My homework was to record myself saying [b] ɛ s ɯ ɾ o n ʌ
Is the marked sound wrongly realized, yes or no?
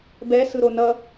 no